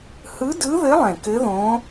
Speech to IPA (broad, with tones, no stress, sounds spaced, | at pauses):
h ɯ˧˥ d ɯ˧˥ ð ɘ˧˥ lˠ ɛ̃˨˩ k ɘ˧˥ ð õ˧˥